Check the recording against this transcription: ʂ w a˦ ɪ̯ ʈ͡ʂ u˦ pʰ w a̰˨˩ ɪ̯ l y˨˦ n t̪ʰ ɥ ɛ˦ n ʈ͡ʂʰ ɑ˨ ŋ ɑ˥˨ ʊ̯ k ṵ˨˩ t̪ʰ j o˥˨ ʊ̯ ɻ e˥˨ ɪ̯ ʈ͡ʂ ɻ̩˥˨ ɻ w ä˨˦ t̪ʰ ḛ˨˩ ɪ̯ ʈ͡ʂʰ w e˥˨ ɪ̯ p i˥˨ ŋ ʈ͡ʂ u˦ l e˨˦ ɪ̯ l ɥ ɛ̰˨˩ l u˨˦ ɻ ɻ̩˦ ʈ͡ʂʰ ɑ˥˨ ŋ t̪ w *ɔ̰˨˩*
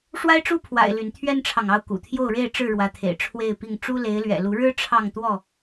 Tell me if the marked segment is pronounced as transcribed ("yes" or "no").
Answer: no